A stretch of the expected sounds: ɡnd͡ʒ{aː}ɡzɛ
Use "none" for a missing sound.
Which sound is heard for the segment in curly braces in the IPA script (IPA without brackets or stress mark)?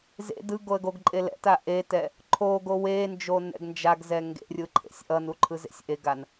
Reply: a